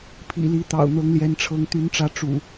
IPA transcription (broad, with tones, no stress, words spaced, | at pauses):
pʰḭ˨˩li˨˦t̪ɑ̰˨˩ʊ̯ n̪ɤ˨˦ŋljɛ˨˦nʈ͡ʂʰɤ˨˦ŋ t̪y˨˦nʈ͡ʂä˨˦ ʈ͡ʂṵ˨˩